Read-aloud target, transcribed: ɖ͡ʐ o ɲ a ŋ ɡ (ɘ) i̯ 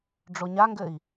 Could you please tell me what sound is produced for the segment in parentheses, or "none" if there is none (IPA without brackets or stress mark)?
ɘ